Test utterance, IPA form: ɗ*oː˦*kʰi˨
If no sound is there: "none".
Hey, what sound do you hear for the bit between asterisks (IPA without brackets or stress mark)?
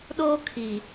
oː˦